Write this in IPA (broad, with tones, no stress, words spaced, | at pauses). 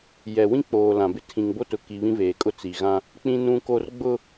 jɛ˨wĩ˦k͡poː˨ lã˨bɪ˦ tʰĩ˨ŋbo˦tʊ˨ki˨ βĩ˦veː˨kʼʊ˦˨ t͡si˨ɣã˦ | k͡pĩ˦nũ˦ko˦r ɡ͡bʊ˦